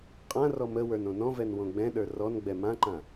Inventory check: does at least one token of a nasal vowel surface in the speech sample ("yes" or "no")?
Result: yes